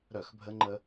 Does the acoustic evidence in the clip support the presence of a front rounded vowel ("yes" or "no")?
yes